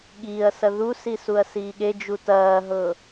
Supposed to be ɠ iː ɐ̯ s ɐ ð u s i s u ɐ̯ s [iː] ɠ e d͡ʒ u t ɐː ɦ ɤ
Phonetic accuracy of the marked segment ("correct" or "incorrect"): correct